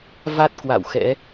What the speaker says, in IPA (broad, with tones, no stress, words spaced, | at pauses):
va˦˥t̚ kwa̰˧˨wxɛ̰˧˥